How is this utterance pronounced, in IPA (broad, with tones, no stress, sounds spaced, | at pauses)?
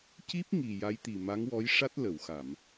c i˦˥ p̚ ŋ i˨˩ j a˧˥ j t̪ i˨˩ m a˧˥ ŋ w ɔ˧˥ j ʂ a˦˥ t̚ l ə˨˩˨ w x a˨˩˨ m